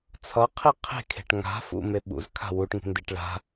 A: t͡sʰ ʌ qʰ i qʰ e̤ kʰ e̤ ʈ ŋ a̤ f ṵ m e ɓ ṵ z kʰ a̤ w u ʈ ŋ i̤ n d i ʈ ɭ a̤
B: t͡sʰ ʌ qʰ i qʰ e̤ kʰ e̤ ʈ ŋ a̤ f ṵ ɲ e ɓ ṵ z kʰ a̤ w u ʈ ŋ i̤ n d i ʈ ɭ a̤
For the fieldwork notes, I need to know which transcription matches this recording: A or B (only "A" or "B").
A